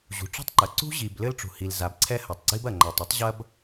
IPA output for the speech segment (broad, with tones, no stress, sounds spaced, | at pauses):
ʑ ṳ˩ ʈ͡ʂ ṳ˥ tˤ ǃ ɐ˩ ǀ ṳ˥ ʑ i˩ b l ɘ˥ l ʈ͡ʂ ṳ˩ h i˩ l z a˩ b ǀʰ ɛ˥ h ɐ˩ tˤ ɡ͡ǀ i˥ b ɐ˩ ŋ͡ǃ a˩ tˤ ɨ˥ tˤ ʑ ɐ˥ b